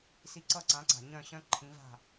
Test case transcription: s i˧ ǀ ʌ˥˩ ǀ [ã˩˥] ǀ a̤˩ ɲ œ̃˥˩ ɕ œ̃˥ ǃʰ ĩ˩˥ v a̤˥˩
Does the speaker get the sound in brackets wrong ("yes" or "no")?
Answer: no